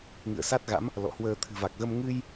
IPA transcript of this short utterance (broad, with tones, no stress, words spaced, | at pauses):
ŋɨ̰˧˨ə̯sa˦˥t̚ɣa̰˧˥m | lɔ̰˧˨hwəː˧ t̪ʰɨ̤˨˩va˨˩k̚ɣə˧m ŋɨ˧j